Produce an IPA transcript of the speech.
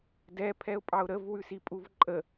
dɛ pʰɛʊ̯pʼɑʊ̯ɾəv wʉsipʼuvǃʼə

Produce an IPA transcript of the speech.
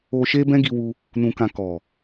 o˧ ʃe˦bɛ̃˦ɡi˧wu˧ | nũ˧kã˧ kɔ˨

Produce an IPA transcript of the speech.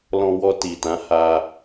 lɔ̃˧wɔ˧ti˨ tã˨˦ ha˦

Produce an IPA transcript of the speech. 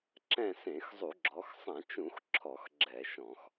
ǁɛ̃˦˨sẽ˧˩˧xzˤu˧˩˧ ɡ͡ǁɔ˩˧xsˤã˧˩˧t͡ʃũ˧˩˧x ǁʰɔ˧˩˧xɡ͡ǁɛ˧˩˧ʃɔ̃˧˩˧x

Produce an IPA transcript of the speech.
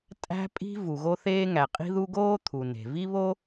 tʼæ̤˥pʼi̤˥ vu˩ɣo˥θeː˥ŋæ˩ qʼi̤˥ðu˥ ɡoː˥t̪ʰu˩ ne̤˩vi˥βo˥

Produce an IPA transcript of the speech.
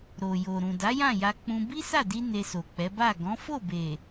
ɾo˨jo˨ ɾũ˨da˨˦ jã˦˨ja˧k͡pũ˧ bi˦sa˦˨di˧ ne˧so˨k͡pɛ˨˦ ba˦˨ ɡɔ̃˨˦ fo˦˨be˨

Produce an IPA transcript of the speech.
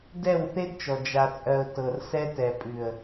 dɛ˦˨wθe˦dt͡ʃɔ˨ d͡ʒa˨t͡sʼɜ˨ʊ̯ tɤ˨r sɛ˦tɛ˨ pʼʉ˨ə̯

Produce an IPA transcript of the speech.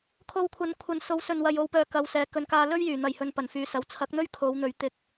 kʰo˧wkʷʰɐ˨˧nkʷʰɐ˨nso˨˧w sɵ˨nwɐ˨j o˨wpœː˨ kɐ˨˧wsɛː˨˧ kɵ˨nkaː˧lɵ˥ɥ jyː˨˩n̪ɐ˨˩jhɵ˨n pɐ˨˩nfyː˨˧sɐ˨˧w t͡sʰɐ˨˥k̚n̪ɵ˥ɥ kʰo˨˧wn̪ɵ˨˧ɥ t̪ɪ˧k̚

